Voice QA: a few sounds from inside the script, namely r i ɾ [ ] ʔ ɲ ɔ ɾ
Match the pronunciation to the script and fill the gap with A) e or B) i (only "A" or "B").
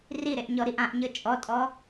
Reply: A